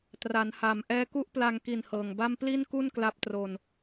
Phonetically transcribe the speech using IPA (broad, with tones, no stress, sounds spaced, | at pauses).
t r a˩˦ n h a˨˩ m ʔ ɛː˧ k u˦˥ ʔ p l a˧ ŋ k i˨˩ n h ɤː˨˩ ŋ b a˥˩ m p l i˥˩ n k u˥˩ n k l a˦˥ p̚ t r o˧ n